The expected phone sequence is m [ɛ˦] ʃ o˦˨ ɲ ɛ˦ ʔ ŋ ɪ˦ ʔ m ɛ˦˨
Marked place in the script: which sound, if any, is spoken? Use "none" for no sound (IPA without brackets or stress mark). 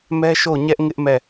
ɛ˦